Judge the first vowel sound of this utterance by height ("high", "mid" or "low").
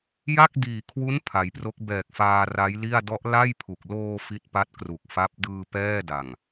low